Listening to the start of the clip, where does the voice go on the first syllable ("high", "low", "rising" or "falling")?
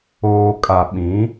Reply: low